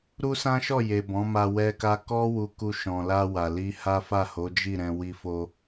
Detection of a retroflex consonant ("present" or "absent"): absent